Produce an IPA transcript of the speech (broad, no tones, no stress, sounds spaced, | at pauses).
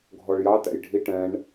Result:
ɡʱ ɔ ɭ j ɑ t æ̰ j ɖʱ i ʈ ɛ̃ ɳ